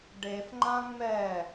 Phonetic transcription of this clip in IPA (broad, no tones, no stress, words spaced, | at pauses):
ɖef ŋ͡ǃãŋ͡mɛ